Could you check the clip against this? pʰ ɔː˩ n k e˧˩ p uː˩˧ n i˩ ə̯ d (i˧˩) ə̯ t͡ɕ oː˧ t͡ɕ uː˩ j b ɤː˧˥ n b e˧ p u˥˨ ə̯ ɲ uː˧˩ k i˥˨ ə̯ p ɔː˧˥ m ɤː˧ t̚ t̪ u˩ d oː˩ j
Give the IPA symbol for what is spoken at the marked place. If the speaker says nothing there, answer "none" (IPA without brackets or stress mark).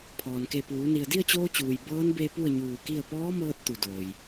i˥˨